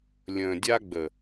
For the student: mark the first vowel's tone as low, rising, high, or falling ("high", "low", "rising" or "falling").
low